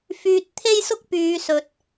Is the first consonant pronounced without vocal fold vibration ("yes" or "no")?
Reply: yes